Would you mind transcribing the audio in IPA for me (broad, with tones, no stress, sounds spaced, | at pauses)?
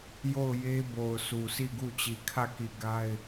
j o˦˨ ʊ̯ j e˦ b o˨ ʊ̯ sʰ u˨ sʰ i˦˨ ɡ u˦˨ t͡ɕ i˨ kʰ ä˦˨ k i˦˨ ɡ a˦ ɪ̯